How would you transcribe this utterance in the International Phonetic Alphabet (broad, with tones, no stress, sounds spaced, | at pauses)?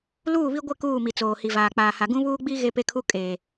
l uː˦˨ β i˦ ɡʷ ɪ˦˨ k uː˦˨ m i˨ t͡s oː˨ h i˨ v aː˨ k͡p aː˨ h a˨ ɡ ũ˦ β uː˦ ɡ͡b i˦ ɣ e˦ p e˦ kʰ u˦ kʼ eː˨